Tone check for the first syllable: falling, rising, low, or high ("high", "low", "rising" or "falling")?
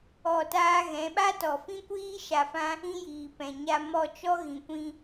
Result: falling